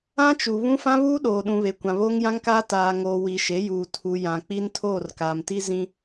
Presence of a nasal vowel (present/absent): present